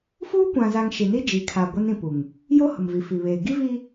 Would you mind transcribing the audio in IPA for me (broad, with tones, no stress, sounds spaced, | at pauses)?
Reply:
f uː˦ kʷ ã˨ z a˨ ŋ ʃ i˨ n i˦ d͡ʒ i˨˦ kʰ a˨ ɡʷ ɛ˦ n ĩ˨ p u˨ ŋ | j o˦ h ʊ˨ m v i˨ f i˨ β eː˨ ɡ i˦ v iː˦